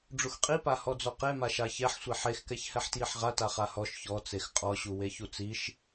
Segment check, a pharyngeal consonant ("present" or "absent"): present